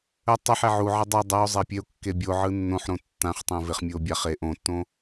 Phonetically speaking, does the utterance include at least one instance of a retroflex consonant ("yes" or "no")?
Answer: no